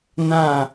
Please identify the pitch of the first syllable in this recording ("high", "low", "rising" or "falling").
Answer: falling